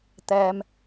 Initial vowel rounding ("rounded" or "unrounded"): unrounded